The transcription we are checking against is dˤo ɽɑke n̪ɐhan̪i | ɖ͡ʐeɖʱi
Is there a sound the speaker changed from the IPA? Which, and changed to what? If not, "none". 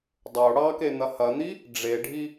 a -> ɐ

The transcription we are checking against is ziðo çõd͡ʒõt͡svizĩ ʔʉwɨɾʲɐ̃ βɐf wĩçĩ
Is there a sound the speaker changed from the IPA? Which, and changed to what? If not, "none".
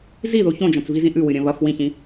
none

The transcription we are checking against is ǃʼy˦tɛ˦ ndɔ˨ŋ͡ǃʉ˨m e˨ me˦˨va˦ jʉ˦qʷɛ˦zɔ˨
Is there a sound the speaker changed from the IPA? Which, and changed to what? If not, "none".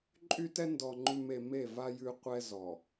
none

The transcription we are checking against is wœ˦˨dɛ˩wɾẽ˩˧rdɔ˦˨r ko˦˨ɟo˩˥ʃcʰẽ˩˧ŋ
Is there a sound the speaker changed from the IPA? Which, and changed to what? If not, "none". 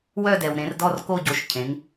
none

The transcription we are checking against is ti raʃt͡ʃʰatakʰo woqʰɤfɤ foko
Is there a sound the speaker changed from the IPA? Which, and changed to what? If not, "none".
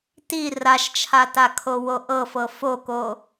qʰ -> ʔ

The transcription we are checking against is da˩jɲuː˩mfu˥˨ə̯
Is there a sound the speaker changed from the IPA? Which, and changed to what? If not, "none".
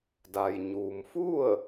none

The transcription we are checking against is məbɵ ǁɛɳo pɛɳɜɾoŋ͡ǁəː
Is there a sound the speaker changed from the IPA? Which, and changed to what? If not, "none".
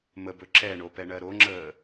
none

